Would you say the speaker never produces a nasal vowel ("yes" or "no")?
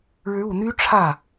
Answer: yes